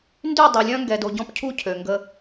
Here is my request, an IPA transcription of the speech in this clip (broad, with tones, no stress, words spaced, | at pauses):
ndy˦˨ dˤɛ˨˦lʲœ̃˦ŋɡɛ˨do˨ ɟɔ̃˦pcʰu˦˨ cʰø˨ŋɡə˦